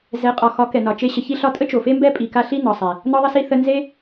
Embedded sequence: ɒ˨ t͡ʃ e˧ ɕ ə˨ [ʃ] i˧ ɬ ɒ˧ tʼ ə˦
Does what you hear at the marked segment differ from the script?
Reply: yes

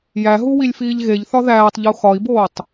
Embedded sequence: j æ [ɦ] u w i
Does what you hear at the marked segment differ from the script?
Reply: no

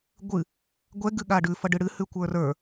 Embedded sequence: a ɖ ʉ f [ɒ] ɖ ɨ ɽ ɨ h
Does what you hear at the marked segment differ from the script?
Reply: yes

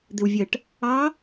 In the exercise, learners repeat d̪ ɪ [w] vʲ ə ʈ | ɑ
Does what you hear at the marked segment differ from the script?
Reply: no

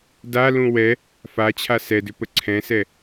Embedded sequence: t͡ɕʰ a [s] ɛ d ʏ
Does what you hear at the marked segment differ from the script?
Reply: no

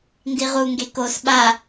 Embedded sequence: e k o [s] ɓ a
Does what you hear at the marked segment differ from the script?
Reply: no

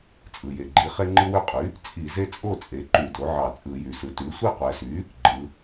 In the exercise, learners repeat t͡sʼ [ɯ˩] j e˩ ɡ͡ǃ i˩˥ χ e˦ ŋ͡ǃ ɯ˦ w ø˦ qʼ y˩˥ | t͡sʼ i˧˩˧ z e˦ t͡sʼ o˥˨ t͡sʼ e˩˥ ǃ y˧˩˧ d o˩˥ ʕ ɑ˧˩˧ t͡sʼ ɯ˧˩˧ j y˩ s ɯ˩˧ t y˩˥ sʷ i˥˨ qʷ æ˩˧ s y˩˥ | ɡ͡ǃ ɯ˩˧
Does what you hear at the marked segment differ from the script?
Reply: no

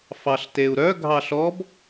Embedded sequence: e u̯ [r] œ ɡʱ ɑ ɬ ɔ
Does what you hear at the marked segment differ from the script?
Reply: yes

